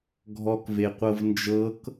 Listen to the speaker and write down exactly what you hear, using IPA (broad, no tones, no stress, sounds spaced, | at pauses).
ɡʱ ɔ k v e qʷ ɤ v n d͡ʒ ɤ k